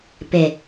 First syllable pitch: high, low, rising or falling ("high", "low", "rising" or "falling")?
low